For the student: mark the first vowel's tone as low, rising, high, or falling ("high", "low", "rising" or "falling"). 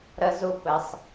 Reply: high